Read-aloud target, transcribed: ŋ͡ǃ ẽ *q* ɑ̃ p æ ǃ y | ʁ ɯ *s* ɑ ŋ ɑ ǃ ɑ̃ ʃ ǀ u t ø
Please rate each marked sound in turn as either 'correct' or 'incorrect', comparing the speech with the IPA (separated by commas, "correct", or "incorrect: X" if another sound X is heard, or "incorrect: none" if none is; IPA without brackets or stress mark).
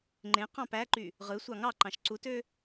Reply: correct, incorrect: sʷ